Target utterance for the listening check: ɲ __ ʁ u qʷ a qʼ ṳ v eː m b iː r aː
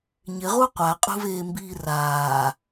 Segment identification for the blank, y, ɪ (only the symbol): ɪ